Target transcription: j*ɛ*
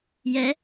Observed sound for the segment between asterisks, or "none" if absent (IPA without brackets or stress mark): ɛ